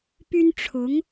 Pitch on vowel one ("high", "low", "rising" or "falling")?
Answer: high